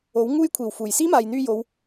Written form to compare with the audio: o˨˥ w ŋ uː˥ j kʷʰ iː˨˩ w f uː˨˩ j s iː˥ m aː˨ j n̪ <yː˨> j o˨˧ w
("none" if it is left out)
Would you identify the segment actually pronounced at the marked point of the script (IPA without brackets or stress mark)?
yː˧